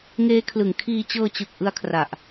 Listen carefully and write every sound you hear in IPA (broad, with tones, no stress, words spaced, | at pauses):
ŋeː˦˥kʰlɯ˩˦ŋkʰiː˧ t͡ɕɤː˧t͡ɕɯ˨˩k̚ ʔɯ˦˥a̯kʰra˨˩ʔ